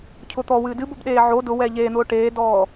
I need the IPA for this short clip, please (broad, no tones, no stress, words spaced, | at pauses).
cʰʊt̪ɔ wɨːdɨbob ɗeːʕo dʊ wɛːʎeːn̪ʊː ʈeːdɔː